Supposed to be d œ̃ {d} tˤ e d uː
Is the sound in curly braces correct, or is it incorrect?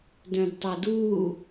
correct